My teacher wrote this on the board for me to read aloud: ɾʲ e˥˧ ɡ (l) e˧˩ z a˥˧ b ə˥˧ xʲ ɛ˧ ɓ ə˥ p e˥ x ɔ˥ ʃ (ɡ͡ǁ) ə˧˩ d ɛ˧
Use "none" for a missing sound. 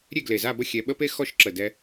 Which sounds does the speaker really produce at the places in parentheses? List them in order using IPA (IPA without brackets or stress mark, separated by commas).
l, ǁ